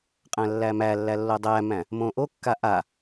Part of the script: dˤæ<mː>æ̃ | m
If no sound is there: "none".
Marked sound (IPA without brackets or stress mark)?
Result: m